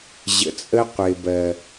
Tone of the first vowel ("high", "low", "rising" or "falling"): low